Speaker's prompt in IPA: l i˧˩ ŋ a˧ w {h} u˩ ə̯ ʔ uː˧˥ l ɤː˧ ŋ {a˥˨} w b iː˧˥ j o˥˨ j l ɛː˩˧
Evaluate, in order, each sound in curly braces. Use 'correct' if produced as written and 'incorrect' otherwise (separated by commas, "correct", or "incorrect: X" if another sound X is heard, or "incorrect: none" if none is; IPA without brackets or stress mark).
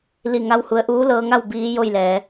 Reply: correct, correct